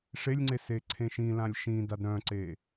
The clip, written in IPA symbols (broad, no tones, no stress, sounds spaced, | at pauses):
ʂ e lʲ ŋ͡ǀ e s e ǀʰ ẽ ʃ ĩ l ã lʲ ʃ ĩ d a d ɾ œ̃ ǀ e